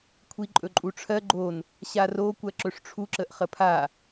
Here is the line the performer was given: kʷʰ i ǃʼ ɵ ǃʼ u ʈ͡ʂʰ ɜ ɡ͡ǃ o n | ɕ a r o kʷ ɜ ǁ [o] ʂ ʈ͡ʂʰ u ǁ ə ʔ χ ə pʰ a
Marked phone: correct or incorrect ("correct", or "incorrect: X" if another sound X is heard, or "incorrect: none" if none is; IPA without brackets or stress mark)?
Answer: incorrect: ɵ